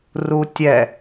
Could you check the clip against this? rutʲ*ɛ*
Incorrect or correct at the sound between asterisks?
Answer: correct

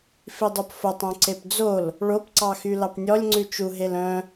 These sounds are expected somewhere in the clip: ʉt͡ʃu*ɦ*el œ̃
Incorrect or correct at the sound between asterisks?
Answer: correct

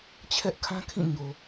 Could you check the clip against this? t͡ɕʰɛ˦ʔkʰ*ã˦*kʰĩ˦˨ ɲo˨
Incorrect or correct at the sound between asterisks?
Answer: correct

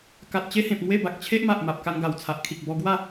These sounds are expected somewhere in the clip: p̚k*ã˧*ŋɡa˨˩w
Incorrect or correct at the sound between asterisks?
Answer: incorrect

